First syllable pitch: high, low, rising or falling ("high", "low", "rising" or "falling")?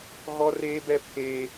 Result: high